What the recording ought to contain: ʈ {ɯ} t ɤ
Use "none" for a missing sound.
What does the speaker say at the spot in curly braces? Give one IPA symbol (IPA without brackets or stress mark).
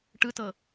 ɯ